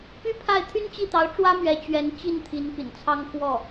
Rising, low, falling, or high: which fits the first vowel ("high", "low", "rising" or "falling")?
high